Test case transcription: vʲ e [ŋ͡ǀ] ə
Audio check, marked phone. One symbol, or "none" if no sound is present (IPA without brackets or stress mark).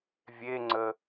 ŋ͡ǀ